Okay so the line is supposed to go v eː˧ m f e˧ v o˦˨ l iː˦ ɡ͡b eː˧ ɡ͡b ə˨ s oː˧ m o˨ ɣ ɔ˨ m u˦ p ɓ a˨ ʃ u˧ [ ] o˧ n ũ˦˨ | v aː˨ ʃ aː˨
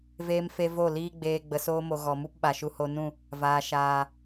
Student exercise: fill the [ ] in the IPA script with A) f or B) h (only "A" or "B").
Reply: B